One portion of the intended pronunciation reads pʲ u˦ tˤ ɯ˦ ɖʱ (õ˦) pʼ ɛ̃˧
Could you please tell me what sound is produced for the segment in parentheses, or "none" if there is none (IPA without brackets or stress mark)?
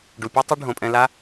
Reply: õ˨